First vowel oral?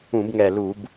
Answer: no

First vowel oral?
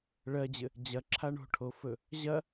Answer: yes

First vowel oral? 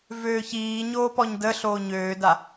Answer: yes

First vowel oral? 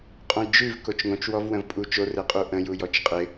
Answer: no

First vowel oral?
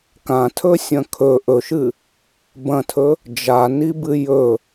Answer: no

